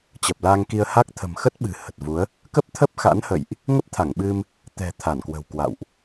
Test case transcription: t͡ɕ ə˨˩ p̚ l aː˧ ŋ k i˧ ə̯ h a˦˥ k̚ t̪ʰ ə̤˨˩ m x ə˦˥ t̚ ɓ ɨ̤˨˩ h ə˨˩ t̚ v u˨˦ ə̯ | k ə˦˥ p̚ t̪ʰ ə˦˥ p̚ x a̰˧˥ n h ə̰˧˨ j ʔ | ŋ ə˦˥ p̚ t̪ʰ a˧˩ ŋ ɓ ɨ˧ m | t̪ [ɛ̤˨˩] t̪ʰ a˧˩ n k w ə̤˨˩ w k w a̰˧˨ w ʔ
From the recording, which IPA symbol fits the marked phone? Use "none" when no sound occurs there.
ɛ̤˨˩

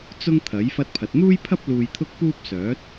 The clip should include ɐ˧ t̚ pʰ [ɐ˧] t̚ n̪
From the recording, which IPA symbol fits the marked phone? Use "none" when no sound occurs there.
ɐ˨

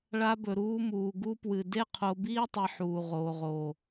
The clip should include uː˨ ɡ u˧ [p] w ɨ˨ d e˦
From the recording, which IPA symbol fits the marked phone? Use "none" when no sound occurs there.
p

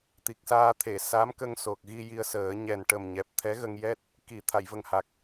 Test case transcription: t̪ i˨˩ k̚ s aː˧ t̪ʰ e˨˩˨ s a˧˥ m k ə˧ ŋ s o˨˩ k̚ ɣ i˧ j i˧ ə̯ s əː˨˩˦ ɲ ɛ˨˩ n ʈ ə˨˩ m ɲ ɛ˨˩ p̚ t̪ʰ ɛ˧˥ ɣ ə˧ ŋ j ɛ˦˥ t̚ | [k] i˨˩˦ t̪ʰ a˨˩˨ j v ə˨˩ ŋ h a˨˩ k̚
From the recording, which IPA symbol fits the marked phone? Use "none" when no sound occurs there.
k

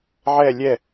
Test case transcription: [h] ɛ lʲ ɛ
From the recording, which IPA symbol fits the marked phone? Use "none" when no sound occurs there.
ʕ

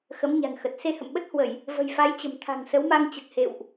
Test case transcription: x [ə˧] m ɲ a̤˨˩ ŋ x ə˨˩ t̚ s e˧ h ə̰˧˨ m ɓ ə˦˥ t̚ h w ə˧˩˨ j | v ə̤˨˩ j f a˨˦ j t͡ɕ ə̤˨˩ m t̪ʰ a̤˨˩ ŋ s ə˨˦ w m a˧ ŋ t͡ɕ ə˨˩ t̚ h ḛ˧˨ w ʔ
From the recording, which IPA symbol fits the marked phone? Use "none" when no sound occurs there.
ə˨˦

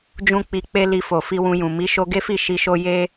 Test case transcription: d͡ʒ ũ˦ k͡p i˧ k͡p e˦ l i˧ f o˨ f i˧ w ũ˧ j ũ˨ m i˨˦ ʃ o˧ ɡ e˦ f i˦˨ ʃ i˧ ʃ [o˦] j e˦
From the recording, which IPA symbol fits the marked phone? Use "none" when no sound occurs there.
o˦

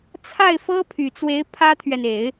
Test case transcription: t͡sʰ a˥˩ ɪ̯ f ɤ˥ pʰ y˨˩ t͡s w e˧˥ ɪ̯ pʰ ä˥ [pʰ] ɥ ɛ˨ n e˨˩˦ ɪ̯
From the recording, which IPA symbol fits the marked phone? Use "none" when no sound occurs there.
t̪ʰ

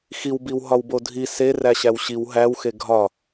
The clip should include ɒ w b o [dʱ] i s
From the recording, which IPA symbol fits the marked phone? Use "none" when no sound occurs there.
dʱ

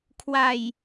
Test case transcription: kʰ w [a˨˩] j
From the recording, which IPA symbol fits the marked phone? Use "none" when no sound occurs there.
a˨˩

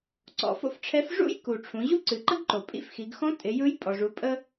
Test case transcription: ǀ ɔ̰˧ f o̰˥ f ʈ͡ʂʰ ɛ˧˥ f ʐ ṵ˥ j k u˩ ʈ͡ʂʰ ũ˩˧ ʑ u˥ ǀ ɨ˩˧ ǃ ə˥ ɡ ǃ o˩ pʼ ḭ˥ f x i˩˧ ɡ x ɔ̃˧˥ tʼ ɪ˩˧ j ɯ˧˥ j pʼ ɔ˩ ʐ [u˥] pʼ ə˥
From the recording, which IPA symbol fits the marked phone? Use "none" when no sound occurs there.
u˩˧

